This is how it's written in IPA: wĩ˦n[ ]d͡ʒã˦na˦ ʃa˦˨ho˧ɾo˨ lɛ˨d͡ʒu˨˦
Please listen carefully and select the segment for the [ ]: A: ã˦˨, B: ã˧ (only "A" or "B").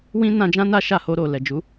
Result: B